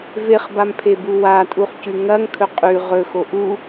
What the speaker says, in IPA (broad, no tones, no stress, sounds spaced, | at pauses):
v e χ b a m pʰ e b u w a tʼ u χ c ʉ ŋ ɐ ŋ kʰ ɵ qʼ ʉ ʁ ɵ x o ʔ u